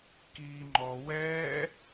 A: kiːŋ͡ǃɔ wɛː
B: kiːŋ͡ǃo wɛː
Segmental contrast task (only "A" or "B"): A